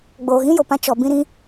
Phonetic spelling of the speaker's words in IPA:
ɡ͡b oː˨ ɣ ĩ˦ j o˨ p ã˧ t͡ʃ ɔ˨ b ĩ˧ ɾ ĩ˧

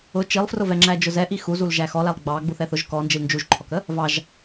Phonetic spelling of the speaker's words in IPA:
ʊ t͡ʃ i lˠ f r ʊ v ɛ ŋ͡ǁ æ d͡ʒ ʊ z ɛ ʔ i x u z u l ʒ æ x ɔ l æ lˠ ɡ͡b ɑ ɡ͡b u θ ɛ θ ʊ ʒ k ɔ n d͡ʒ i l n d͡ʒ u ʒ ǃʰ ɔ k ə | v ɑ ʒ

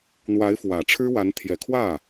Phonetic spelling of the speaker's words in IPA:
n̪ w a˧˥ ɪ̯ f w ä˨˩ ʈ͡ʂʰ ɻ̩˥ w a˧˥ n t̪ʰ j ɛ˨˩ kʰ w ä˥˩

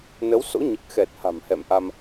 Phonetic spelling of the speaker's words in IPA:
n ə˨˦ w s o̰˧˥ ɲ ɨ˨˩ k̚ x ɛ˨˩ t̚ h a̤˨˩ m h ɛ̰˧˨ m ʔ a˧ m

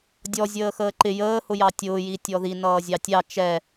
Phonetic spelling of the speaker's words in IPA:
dʲ ɔ zʲ əː x əː ǃ ɪ j əː h ʊ j ɑ tʲ ʊː j i tʲ ɔ ð i n ʌː zʲ ɑ tʲ ɑ t͡ʃ ɛ

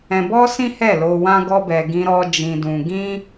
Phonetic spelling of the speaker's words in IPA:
ɛ̃˧ b ɔ˦ s ĩ˦ h ɛ˦˨ l o˧ w ã˦ ɡ ɔ˦ b ɛ˧ ɡ ĩ˦ ɾ ɔ˦ d͡ʒ ĩ˧ d ũ˧ ɡ ĩ˦

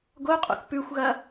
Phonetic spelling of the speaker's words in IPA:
ɡ o qʼ o̰ θ p ʉ xʷ ɣ ɐ

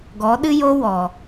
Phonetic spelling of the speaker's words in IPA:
ɡ ɔ˨˦ ɗ ɨ˦ j o˦ w ɔ˨

